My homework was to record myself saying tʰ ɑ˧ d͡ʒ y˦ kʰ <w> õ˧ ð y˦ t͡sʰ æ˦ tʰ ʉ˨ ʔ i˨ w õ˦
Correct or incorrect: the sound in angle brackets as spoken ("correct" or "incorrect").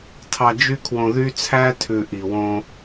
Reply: correct